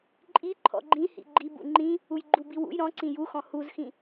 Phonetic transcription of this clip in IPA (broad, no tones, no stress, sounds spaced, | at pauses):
ǃʼ i ǃʰ ɔ̰ ɡ͡ǃ ĩ h ḭ ɡ͡ǃ i b ṵ ŋ͡ǃ ĩ | u j ɡ͡ǃ u b i w ṵ j ɾ ɔ̃ ǀ ĩ j u x ɔ̃ h u z x ĩ